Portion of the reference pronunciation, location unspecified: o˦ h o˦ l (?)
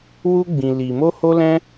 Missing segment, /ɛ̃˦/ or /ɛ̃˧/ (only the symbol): ɛ̃˦